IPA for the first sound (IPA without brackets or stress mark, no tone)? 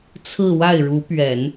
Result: t͡sʰ